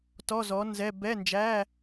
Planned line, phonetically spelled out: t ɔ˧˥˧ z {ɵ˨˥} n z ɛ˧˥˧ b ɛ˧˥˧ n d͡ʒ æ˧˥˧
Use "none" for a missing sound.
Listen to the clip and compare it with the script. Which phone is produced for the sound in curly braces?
ɔ˨˥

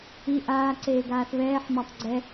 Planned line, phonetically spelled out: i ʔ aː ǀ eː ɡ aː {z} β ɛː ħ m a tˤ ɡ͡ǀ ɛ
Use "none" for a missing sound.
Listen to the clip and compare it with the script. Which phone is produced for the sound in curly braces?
θ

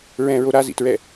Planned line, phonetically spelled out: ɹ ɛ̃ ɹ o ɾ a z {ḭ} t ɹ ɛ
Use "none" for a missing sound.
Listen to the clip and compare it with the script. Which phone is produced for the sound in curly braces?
ḭ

